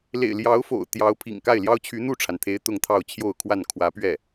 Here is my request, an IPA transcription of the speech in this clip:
l ḛ˨˩ ɪ̯ l j ɑ˧˥ ʊ̯ f o̰˨˩ ʊ̯ t̪ j ɑ˧˥ ʊ̯ pʰ ḭ˨˩ ŋ k a˥˩ ɪ̯ l j ɑ˥ ʊ̯ t͡ɕʰ y˧˥ n̪ u˥˩ ʈ͡ʂʰ a˩ n t̪ʰ e˧˥ ɪ̯ t̪ ʊ˥˧ ŋ t̪ʰ ɑ˥˧ ʊ̯ t͡ɕʰ j o˥˧ ʊ̯ kʰ w a˥˩ n kʰ w ä˧˥ p ɥ ɛ˥˩

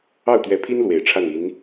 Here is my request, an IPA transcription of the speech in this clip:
ɑ˥˩ ʊ̯ t̪ ɥ ɛ˧˥ pʰ i˥ n l w e˨˩ ɪ̯ ʈ͡ʂʰ a˥˩ n i˧˥ n

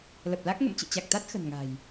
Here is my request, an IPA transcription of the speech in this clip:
l ə˨˩ p̚ l a˦˥ k̚ ŋ ə̰˧˨ m t͡ɕ ɨ̰˧˨ t͡ɕ a˨˩ k̚ t̪ a˦˥ t̚ x ə̤˨˩ n ŋ a̤˨˩ j

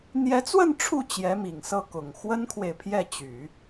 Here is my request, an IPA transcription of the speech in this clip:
n̪ j ɛ˧˥ t͡s w ə˥˧ n ʈ͡ʂʰ u˥˩ t͡ɕ j ɛ˧˥ m i˨˩ ŋ s ɤ˥˩ k ʊ˨˩ ŋ x w ə˥ n kʰ w e˨ ɪ̯ pʰ j ɛ˥˩ t͡ɕ y˨˩˦

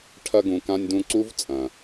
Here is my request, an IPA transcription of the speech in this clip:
ʈʰ ɐ˦ ɡ ũ˨ k ã˦ nʲ d ũ˦ ǀ u˥ v t͡sʼ ɐ̃˩

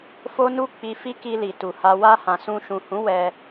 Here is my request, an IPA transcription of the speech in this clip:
f o˦ n u˦ k͡p i˧ f i˦ k i˧ l i˨ t u˨ h a˧ w a˧ h ã˨ s ũ˧ ʃ ũ˨ h ũ˨˦ w ɛ˧

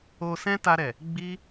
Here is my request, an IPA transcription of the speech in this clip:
o˧ s ɛ̃˦ t a˧ ɾ ɛ˨ | ɡ͡b i˦

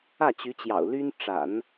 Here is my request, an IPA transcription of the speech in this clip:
ä˥˩ t͡ɕ y˧˥ t͡ɕ j ɑ̰˨˩ ʊ̯ l y˥ n ʈ͡ʂ a̰˨˩˦ n

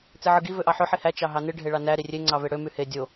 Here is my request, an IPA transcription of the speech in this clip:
t͡s e ʕ ɯ ɡ i v ø ʔ ɑ ħ ø ħ i h æ t͡ʃ ɑ ɦ ɑ n ɯ ɖʱ e ɭ ɑ n æ ɾ i rʲ e ŋ͡ǀ ɑ v e ɽ ø m y h e dʲ o

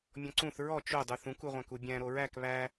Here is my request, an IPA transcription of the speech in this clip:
mʲ ɔ̃ ǀ ũ θ ɹ ɔ t͡ʃ o dˤ u θ ũ k u ʁʷ æ̃ k u bʲ æ̃ ɾ o ɹ æ k β æ

